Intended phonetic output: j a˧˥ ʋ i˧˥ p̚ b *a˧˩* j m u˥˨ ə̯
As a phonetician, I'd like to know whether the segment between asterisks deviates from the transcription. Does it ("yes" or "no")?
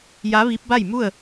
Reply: yes